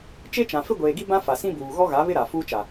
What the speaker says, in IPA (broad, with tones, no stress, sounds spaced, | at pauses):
t͡ʃ e˦ t͡ʃ ã˨ f ɪ˦ ɡʷ eː˨ ɡ i˦ b ã˦ f a˨ s ĩ˦ b uː˨ ɣ ɔ˦ ɣ a˨˦ β ɪ˦ ɾ a˨ f uː˦ t͡ʃ a˨